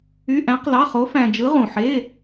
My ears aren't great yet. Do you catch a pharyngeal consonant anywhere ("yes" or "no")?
yes